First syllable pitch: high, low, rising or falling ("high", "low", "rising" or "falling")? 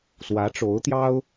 rising